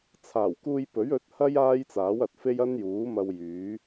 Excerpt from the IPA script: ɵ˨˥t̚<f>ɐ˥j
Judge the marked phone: incorrect: h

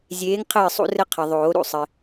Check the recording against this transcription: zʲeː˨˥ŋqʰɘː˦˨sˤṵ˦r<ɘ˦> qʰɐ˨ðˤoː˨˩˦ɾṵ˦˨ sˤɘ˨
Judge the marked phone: correct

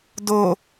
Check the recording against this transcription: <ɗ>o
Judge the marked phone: incorrect: d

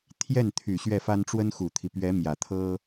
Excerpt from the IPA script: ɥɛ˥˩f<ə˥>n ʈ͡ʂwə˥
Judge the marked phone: incorrect: a˥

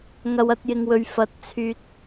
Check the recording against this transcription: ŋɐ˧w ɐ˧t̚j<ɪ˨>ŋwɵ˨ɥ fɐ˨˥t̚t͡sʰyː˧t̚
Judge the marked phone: correct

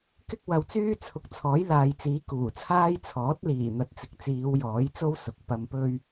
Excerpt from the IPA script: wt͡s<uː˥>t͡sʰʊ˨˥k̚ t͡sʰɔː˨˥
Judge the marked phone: incorrect: yː˥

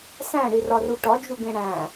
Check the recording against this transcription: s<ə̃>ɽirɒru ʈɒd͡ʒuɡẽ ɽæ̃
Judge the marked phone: incorrect: æ̃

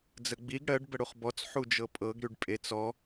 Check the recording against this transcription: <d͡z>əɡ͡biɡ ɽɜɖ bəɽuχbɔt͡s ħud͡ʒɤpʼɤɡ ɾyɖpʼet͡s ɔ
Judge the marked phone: correct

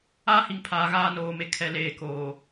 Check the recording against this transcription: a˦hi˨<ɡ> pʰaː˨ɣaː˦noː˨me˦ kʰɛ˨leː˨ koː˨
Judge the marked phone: incorrect: ŋ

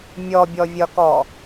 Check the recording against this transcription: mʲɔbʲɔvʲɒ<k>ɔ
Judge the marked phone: correct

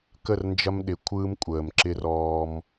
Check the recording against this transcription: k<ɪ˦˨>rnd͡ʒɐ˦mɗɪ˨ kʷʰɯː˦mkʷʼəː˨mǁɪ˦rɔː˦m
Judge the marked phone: incorrect: ə˦˨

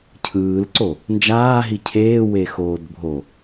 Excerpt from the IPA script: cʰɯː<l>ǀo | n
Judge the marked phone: correct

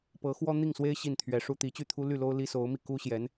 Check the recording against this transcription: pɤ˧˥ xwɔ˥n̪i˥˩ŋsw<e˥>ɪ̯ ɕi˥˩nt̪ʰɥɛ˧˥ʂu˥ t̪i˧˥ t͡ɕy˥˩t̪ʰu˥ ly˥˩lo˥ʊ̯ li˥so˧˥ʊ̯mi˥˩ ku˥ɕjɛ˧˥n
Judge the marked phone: correct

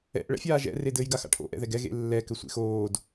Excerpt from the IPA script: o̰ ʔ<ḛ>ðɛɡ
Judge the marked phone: incorrect: ɛ̰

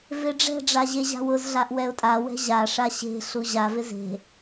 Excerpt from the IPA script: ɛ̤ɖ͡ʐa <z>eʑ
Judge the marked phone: incorrect: ʑ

